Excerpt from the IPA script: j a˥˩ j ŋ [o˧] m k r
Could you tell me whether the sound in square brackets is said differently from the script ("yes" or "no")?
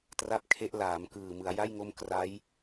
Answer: yes